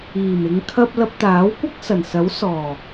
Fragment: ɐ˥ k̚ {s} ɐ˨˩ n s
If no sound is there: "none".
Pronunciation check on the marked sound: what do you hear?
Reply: s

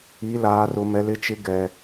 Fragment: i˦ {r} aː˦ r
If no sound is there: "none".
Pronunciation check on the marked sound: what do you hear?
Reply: l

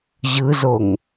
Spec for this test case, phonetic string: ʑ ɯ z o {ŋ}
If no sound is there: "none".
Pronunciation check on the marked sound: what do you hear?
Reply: ŋ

